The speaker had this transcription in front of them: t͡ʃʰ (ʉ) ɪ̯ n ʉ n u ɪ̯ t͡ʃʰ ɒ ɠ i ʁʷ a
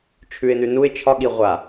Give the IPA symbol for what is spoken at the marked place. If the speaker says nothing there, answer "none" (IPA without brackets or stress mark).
ʉ